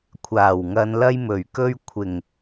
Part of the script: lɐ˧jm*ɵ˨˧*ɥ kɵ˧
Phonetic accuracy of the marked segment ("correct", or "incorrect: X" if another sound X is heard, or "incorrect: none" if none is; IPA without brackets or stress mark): incorrect: ɵ˨˩